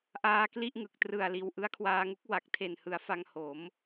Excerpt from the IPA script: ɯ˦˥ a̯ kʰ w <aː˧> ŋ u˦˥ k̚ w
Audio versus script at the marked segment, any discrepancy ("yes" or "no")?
no